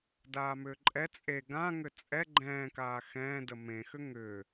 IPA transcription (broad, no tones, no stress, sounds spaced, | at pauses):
d aː m ʏː ǃʼ ɛ t͡sʼ e ɡ ã ŋ ʏ t͡sʼ ɛ ɡ͡ǃ ɛ̃ː k aː x ɛ̃ː d ə m ẽ x ʏ ŋ ʏ